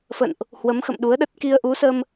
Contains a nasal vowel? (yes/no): no